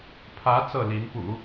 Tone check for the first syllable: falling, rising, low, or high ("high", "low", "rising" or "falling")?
rising